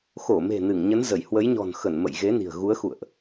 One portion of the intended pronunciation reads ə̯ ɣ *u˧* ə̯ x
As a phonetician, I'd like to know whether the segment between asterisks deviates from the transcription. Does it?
yes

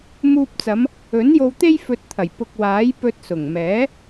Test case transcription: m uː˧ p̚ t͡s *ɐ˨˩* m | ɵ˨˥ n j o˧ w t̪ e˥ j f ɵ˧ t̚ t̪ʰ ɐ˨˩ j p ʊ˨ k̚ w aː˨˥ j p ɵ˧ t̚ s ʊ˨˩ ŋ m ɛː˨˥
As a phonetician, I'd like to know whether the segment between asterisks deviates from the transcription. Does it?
yes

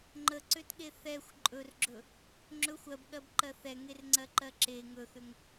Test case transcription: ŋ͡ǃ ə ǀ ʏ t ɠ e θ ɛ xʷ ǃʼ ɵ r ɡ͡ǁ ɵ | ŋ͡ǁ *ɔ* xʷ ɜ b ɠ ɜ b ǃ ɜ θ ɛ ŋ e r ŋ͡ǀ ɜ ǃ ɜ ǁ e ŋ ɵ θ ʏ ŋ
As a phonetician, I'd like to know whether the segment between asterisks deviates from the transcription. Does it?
yes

